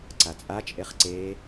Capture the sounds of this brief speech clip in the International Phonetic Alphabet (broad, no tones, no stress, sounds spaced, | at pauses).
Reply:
ǀ a t͡sʼ a t͡ʃʼ e χ ǀ e